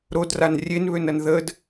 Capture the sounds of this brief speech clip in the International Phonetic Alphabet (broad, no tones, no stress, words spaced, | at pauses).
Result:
ɾodran rʲenβønɐn ðəd